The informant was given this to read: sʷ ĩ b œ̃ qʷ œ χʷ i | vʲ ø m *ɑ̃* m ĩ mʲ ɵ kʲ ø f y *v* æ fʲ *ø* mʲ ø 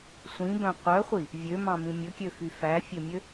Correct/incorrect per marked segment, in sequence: correct, incorrect: f, correct

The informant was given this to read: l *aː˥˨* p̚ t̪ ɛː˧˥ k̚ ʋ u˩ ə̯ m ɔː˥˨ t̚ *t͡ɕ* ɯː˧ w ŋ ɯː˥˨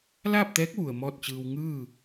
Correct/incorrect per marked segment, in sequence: correct, correct

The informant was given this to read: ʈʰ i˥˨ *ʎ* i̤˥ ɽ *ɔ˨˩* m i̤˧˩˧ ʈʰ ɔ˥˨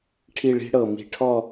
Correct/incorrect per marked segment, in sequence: incorrect: ɭ, incorrect: ɤ˨˩

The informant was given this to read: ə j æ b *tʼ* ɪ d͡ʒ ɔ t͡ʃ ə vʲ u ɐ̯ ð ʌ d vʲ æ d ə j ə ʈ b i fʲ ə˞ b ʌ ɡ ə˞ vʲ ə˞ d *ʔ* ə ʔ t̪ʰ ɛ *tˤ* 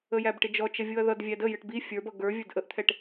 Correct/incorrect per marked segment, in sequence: incorrect: ʈ, correct, incorrect: ʈ

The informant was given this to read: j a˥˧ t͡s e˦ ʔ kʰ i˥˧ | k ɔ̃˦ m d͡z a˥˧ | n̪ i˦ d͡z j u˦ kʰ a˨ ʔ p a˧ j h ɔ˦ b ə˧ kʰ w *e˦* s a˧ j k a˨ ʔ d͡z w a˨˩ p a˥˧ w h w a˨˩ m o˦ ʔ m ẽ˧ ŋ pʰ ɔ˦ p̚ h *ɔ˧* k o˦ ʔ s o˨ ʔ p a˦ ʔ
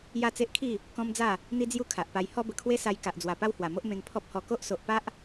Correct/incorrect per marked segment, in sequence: correct, correct

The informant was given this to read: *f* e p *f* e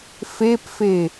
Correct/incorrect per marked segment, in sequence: correct, correct

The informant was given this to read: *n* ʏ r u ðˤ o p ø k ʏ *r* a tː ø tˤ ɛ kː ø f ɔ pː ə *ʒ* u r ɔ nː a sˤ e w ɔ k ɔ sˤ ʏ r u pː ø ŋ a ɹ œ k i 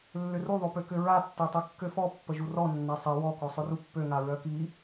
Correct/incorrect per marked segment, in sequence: incorrect: lː, incorrect: ɹ, correct

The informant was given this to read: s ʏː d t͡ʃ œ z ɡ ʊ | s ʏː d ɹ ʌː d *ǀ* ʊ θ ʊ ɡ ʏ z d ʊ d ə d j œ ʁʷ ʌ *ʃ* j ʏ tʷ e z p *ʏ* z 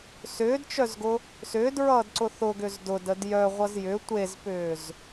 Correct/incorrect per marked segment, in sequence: correct, incorrect: z, incorrect: ʏː

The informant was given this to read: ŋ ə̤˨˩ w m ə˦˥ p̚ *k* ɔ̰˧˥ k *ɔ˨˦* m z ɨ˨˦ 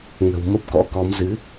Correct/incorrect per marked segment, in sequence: correct, correct

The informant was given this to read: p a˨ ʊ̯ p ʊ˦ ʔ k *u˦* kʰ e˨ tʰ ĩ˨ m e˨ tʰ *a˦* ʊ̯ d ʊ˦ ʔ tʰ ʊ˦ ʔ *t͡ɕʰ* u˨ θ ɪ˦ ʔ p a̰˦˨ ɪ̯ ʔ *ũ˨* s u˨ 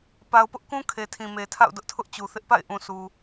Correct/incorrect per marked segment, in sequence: incorrect: ũ˦, incorrect: a̰˦˨, incorrect: t͡ɕ, correct

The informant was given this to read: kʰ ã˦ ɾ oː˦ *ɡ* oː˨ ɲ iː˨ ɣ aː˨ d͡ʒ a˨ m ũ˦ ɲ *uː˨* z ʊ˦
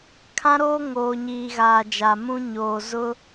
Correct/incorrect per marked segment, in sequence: incorrect: ŋ, incorrect: oː˨

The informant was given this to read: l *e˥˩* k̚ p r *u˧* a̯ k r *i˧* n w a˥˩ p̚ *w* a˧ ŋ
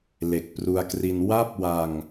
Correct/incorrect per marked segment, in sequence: incorrect: e˨˩, correct, correct, correct

